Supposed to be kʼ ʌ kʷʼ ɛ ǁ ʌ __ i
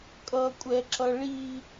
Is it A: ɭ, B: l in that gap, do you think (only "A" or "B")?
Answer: A